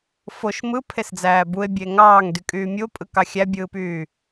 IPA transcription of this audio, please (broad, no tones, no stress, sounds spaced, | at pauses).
f o ʃ m ɯ pʰ e s d͡z æː b u e̯ bʲ e ŋ ɑː ŋ d y kʼ yː mʲ u o̯ pʼ ɯ k ɑ xʲ æ bʲ ɯː p yː